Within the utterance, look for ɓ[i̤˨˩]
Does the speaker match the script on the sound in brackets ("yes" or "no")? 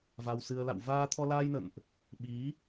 no